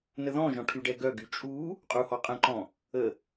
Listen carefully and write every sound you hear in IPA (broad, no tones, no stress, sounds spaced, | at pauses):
n ə ð ɔ̃ ʒ ɔ̃ ʈʰ y ɖ ɛ ɡ œ ɡ y t͡ʃʼ u | qʼ u h ɔ qʼ ə̃ ǃ ɔ̃ | ə